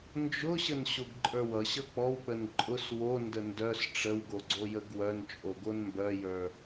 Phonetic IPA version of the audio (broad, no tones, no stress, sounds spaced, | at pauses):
n d͡ʒ ʊ ɕ ə n ɕ o ɡ ǃʼ ə˞ w ʌ ɕ ʌ k͡p ɔ w k͡p ə n ǃʼ ʊ s w o n d ə n d œ s ʈ͡ʂ ə w ɡ o ɡ͡ǀ o j ə ɡ w œ n t͡ʃʼ o ɡ o n m b œ j ə˞